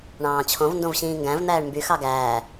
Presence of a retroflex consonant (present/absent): present